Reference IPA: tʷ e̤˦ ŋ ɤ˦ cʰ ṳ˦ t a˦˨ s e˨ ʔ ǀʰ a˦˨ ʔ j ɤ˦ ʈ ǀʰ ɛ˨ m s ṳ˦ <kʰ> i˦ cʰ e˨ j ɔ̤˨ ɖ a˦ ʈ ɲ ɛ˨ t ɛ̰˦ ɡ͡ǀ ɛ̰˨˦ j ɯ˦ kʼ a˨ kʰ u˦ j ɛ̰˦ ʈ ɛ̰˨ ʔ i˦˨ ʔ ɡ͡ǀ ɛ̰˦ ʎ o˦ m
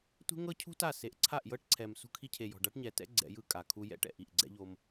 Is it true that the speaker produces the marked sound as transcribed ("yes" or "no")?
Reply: yes